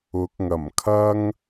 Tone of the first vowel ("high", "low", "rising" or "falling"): rising